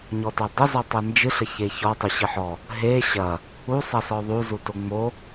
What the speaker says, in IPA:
ɲ ɔ t a dˤ ə z ɔ tˤ e n d͡ʒ ɨ ɬ ə ç e ç ɔ tˤ y ɕ ɨ ħ ɔ | ɦ e ɕ ɐ | u sˤ ɐ s ɔ ðˤ u z u t o ŋ͡m o

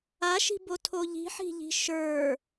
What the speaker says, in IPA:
a ʃ i̤ b o tʰ o ʎ i̤ ħ i̤ ʎ i̤ ʃ ə˞

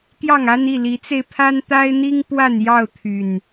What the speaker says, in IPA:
t̪ j ɑ˥˨ ŋ a˦ n i˥˨ l i˨˦ t͡s e˧ ɪ̯ pʰ a˦ n t̪ a˦ ɪ̯ n̪ i˦ ŋ p w a˥˨ n j ɑ˥˨ ʊ̯ t̪ʰ y˨˩ n

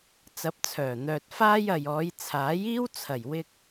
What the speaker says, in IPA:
t͡s ɐ˨˥ p̚ t͡sʰ œː˨˩ n̪ œː˨ t̚ f aː˥ j ɐ˨ j ɔː˨˧ j t͡sʰ aː˨˥ j iː˥ w t͡sʰ ɐ˨˩ j w ɪ˧ k̚

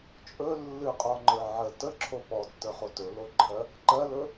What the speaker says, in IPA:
t͡ʃʼ ɵ lː ɨ qʼ ɔ ŋ͡ǃ ə˞ ʕ ə t ə ǁʰ o p ɔ tː ə˞ χ o t ɵ l o ǃʰ ɜ | ǃ ɜ l ɵ

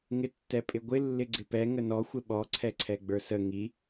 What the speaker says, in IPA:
ŋ ɪ tː ɛ pʼ ɪ ɡʷ ɪ lː ɪ ɡ͡ǀ ɪ p ɛ ŋ ə n ɔ xʷ ɪ ɓ ɔ ǀʰ ɛ ǀʰ ɛ ɡ͡b ə˞ s ə ŋ i

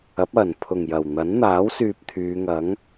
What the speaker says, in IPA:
ɐ˨˥ p̚ ɐ˨˩ n pʰ ʊ˨˩ ŋ j ɐ˨˩ w n̪ ɐ˨˥ n n̪ aː˨˥ w s yː˨ p̚ t̪ʰ yː˨˧ ŋ ɐ˨˥ ŋ

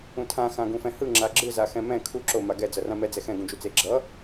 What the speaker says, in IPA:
ũ tʰ ã x ã ɡ ũ f ɛ̃ h ɯ ŋ͡ǁ a ɡ͡ǁ ɯ z a x ɛ̃ m ɛ̃ kʰ u ǁ o m a ɡ ɛ d͡z ʌ r ã m ɛ d͡z ɛ x ɛ̃ ɡ ũ d͡ʒ u t͡s e ɡ͡ǁ ʌ

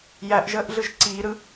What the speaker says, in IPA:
j æ ʔ ʒ əː ʔ ɮ ɯ ʒ ǀ iː ɾ ɯ

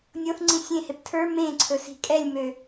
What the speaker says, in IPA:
nʲ o θ ŋ͡ǀ ĩ sʲ ẽ h e p tʰ ə˞ m ẽ ǀʰ ɵ s i̤ kʼ ɛ lʲ m ø

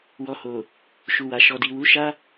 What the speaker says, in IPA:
w ɔ˨ h o˨ | ʃ u˨ w a˨ ʃ ɔ˨ d i˨ w u˨˦ ʃ a˦

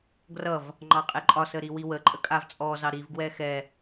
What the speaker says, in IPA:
ɡ r ʌ v | ŋ͡ǃ ɑ qʼ ɛ ǃʼ ɒ s ə ɾ i w i w ə ǃʼ ə kʼ a v t͡sʼ ɔ z ɑ ɾ i v ɡ w ɛ x ɛ

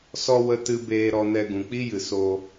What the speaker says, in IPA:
s ɔ˦ w ə˧ t ɨ˧ b eː˧ ɾ ɔ˧ n ɛ˧ ɡ ũ˨ k͡p i˦ j ɨ˨ s o˧

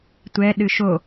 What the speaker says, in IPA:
tʷ ɛ ɗ ɨ ʃ o

